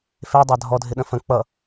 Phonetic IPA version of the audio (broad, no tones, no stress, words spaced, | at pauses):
fedˤa dʱɔdʱɪɗə̃ fə̃ k͡pʌ